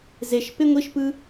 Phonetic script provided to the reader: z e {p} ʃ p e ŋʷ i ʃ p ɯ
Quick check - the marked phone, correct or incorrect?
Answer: incorrect